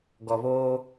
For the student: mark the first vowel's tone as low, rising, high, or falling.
low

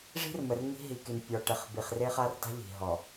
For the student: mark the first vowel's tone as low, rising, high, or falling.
high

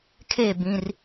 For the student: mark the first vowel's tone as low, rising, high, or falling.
falling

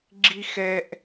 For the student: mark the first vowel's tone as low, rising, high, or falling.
high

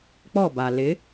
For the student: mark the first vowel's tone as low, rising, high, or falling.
falling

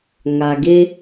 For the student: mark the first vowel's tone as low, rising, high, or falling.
low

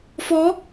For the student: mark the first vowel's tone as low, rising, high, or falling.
rising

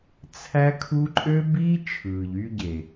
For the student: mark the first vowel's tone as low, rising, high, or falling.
high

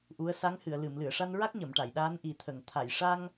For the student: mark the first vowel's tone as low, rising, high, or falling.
rising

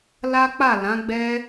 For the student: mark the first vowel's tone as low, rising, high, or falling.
high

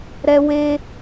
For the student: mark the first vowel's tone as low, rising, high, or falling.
high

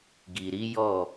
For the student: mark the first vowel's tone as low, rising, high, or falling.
low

